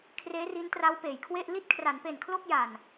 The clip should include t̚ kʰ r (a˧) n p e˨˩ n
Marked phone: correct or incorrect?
incorrect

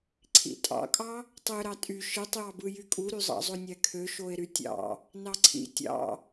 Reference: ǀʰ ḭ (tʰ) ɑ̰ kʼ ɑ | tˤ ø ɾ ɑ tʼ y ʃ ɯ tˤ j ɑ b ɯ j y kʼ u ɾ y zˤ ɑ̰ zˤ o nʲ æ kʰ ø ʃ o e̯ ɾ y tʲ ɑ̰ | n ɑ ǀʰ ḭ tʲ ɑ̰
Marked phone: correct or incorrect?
incorrect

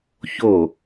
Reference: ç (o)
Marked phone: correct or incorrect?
correct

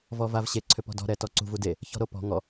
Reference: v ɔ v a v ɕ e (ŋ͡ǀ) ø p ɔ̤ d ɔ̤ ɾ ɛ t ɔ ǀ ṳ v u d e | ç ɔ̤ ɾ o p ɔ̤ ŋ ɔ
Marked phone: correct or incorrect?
incorrect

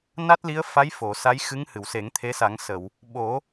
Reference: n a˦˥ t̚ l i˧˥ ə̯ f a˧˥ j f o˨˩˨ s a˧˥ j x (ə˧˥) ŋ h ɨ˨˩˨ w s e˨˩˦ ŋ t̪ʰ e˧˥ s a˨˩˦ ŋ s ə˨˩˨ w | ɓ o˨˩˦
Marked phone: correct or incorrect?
incorrect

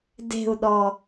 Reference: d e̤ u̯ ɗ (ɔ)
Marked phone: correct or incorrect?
correct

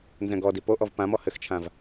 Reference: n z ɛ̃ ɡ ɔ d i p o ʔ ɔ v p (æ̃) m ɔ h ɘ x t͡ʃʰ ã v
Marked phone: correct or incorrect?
incorrect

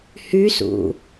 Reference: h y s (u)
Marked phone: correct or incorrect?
incorrect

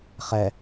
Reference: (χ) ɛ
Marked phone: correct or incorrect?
correct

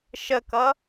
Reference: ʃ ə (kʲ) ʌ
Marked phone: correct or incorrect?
incorrect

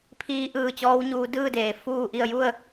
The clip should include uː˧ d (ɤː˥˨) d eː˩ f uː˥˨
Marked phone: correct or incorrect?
incorrect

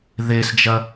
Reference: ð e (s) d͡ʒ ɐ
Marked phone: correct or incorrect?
correct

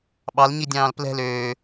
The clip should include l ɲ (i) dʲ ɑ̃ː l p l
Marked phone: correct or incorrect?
correct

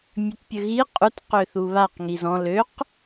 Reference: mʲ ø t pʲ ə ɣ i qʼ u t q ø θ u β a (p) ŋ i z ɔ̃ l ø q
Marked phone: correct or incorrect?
incorrect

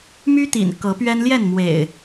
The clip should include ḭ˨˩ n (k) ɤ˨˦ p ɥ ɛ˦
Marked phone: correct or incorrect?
correct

